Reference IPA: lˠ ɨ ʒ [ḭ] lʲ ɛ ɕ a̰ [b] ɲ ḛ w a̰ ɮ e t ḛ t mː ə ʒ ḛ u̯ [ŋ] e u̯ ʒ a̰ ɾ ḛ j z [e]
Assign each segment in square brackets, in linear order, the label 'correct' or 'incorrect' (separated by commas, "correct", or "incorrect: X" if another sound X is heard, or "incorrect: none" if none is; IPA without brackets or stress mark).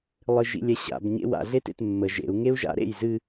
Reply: correct, correct, correct, incorrect: ɨ